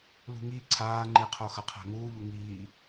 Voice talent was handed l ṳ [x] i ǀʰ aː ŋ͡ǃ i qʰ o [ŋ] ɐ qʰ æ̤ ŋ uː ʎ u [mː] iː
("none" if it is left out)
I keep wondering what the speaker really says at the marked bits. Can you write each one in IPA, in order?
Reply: ŋ, x, ŋ

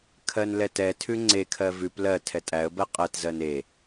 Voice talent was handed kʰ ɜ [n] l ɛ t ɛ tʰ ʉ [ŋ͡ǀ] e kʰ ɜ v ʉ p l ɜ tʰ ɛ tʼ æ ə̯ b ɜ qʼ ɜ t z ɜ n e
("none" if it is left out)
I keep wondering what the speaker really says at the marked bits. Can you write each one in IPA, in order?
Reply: n, ŋ͡ǀ

